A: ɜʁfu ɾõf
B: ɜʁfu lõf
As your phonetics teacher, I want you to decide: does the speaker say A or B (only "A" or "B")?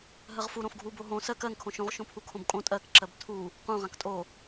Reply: A